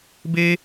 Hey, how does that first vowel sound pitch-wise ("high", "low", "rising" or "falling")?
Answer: high